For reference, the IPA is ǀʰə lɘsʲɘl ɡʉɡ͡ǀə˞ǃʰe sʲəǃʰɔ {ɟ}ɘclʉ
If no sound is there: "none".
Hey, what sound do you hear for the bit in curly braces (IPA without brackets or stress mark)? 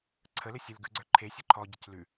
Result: ɟ